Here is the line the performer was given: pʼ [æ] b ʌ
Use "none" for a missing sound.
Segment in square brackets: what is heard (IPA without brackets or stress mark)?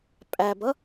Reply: æ